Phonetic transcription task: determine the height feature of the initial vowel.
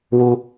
high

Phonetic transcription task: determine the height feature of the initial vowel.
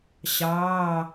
low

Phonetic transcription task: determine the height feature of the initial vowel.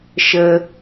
mid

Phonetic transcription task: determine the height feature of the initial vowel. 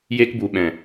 mid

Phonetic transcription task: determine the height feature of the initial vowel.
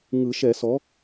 high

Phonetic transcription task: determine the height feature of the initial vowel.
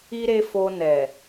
high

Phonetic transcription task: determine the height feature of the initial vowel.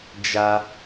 low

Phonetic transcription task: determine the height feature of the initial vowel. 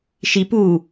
high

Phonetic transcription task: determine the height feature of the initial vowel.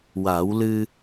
low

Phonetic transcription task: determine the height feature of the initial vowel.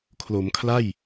mid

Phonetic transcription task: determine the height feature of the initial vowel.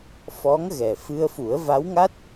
mid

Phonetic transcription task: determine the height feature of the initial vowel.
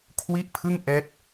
high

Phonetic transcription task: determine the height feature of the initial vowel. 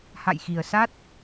low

